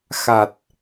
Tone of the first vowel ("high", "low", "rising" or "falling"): low